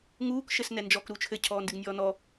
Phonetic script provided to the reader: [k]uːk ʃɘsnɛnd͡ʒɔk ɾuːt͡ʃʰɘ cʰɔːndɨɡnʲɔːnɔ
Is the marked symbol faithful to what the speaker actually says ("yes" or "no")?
no